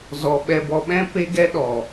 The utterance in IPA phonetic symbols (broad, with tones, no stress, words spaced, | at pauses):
zɔ˨ ɓɛ˨bɔ˨ɓɛ̃˧ pe˧ɡɛ˧ ɗɔ˨